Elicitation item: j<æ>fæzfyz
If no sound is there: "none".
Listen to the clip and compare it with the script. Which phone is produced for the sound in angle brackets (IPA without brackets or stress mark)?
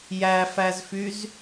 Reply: æ